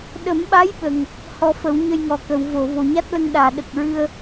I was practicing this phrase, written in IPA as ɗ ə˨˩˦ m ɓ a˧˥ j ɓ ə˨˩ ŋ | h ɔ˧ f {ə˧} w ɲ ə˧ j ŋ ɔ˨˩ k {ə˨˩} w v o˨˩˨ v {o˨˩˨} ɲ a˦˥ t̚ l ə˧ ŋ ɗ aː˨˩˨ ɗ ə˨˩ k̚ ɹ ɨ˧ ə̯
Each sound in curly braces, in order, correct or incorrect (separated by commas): incorrect, incorrect, correct